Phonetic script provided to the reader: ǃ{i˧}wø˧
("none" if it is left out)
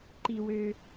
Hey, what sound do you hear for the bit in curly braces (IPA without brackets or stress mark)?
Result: i˧